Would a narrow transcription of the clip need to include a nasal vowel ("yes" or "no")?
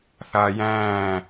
yes